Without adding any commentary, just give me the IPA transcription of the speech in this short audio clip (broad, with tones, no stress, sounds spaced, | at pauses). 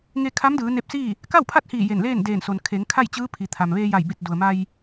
ŋ e˧ kʰ a˧˥ m d ɯː˩˧ n e˧˥ p̚ s iː˥˨ | k a˥˨ w pʰ a˥˨ t̚ h iː˧˩ j e˧˩ n l eː˥˨ n d eː˧˩ n s o˩ n kʰ e˩˧ ŋ kʰ a˥˨ j t͡ɕ ɯː˧˥ pʰ i˩ t̪ʰ a˩ m ʋ eː˧ j a˧˩ j b i˧˩ t̚ d u˩ ə̯ m a˧ j